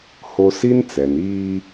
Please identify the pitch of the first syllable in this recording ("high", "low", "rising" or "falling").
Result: high